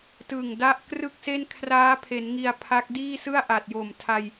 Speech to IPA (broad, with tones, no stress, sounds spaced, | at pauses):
t ɯ˨˩ ŋ d a˦˥ ʔ k r ɯ˥˩ k̚ s e˥˩ n kʰ r aː˦˥ pʰ e˩˦ n ŋ i˧ a̯ pʰ a˦˥ k̚ d iː˥˩ s ɯ˥˩ a̯ ʔ a˨˩ t̚ j o˨˩ m tʰ a˧ j